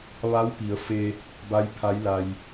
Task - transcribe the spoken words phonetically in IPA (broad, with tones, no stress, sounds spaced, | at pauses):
ʋ a˧˥ w p i˩˧ ə̯ f e˧ | b a˧˥ j pʰ a˧˥ j l a˧ j